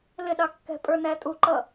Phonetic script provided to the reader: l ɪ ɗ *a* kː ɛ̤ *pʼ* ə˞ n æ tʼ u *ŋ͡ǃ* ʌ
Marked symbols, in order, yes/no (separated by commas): no, yes, no